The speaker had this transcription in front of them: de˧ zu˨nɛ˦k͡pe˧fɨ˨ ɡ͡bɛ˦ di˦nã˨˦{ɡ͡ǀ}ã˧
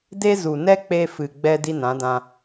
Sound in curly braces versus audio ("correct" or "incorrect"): incorrect